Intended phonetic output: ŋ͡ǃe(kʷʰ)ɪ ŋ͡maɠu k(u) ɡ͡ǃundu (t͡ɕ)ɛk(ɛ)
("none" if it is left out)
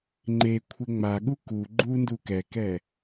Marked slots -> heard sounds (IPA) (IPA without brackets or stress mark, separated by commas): kʷʰ, u, k, ɛ